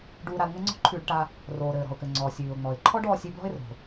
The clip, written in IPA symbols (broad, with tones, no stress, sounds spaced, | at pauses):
ɖ uː˧ ɾ a˧ l ŋ ɘ˥ ŋ͡ǀ ɔ̤˥ ǃʰ ʉː˧ ɖ ʈ a˧ | r oː˩ ɾ ɘː˩ ɾ ɔ̤˩ ʊ̯ k ɘ˩ ŋ͡ǀ ɔː˩ sʲ ʉː˩ ʊ̯ ŋ͡m ɔ˩ ɪ̯ ǃʰ ɔ˥ ɖ ɔː˧ sʲ ʉ˧ b l ɔ̤˥ ɪ̯ r o̤˩